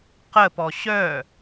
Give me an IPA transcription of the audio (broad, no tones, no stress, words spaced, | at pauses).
qəpɔ ɕœ